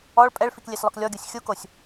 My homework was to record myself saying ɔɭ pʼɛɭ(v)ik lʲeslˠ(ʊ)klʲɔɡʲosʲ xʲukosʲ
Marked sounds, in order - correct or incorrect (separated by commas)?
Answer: incorrect, correct